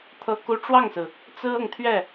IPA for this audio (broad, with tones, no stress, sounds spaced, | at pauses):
t̪ʰ ɤ˥ k u˥ ʈ͡ʂ w ɑ˥˩ ŋ s ɹ̩˩ | t͡s ɹ̩˥ ɤ˨ ŋ t̪ʰ ɥ ɛ˥˩